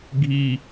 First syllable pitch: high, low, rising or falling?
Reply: high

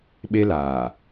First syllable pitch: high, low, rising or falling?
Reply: high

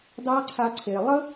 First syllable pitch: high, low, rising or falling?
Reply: high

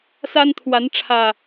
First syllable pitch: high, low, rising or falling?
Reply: high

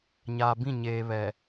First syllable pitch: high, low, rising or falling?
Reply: low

